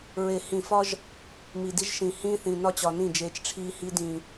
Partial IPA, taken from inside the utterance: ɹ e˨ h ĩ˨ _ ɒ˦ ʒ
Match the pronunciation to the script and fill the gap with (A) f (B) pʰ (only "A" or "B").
A